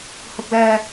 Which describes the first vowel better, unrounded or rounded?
rounded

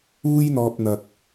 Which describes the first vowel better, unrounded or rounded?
rounded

